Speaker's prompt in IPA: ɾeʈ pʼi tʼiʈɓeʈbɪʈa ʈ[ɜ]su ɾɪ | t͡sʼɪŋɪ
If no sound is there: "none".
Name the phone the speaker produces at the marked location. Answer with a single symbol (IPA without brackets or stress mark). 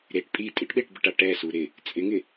ɛ